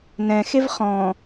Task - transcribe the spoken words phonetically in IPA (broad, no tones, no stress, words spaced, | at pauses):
nɛ̃xev χɔ̃